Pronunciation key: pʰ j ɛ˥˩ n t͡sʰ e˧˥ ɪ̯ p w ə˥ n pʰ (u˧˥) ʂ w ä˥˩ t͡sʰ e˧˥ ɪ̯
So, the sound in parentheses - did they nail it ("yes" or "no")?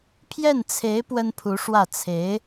yes